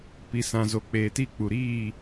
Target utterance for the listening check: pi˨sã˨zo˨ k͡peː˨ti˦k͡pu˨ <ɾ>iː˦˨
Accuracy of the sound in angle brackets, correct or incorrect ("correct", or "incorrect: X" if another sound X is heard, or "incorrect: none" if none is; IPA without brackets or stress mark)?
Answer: correct